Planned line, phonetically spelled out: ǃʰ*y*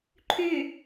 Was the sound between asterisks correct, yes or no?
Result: yes